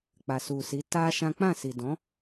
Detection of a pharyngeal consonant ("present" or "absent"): absent